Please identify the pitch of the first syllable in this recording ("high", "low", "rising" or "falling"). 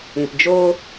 low